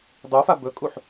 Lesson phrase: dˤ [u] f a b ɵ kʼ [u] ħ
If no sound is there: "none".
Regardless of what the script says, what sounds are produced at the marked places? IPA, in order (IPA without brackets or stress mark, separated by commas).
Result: u, u